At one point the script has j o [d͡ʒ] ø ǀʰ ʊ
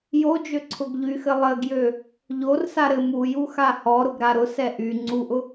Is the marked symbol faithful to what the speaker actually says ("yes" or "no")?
yes